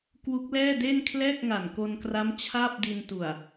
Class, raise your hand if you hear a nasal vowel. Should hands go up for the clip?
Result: no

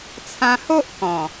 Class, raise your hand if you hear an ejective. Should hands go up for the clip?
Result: no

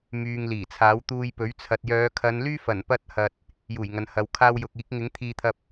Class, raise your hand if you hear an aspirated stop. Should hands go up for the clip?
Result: yes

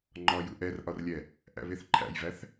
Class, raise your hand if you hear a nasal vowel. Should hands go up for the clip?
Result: no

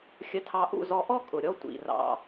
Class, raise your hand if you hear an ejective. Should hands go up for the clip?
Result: yes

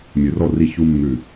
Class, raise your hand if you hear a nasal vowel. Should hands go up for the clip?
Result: no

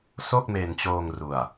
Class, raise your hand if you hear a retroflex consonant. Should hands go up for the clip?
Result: no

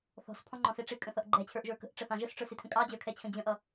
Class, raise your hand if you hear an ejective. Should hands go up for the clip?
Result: yes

